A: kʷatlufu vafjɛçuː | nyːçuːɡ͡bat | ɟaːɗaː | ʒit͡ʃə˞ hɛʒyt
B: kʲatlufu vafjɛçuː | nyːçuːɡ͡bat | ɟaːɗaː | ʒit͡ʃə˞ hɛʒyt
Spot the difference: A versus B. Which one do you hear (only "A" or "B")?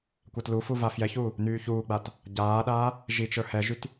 A